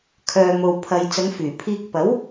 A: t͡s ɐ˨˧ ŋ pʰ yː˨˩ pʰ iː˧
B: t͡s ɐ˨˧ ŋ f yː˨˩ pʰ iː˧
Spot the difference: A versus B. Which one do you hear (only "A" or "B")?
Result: B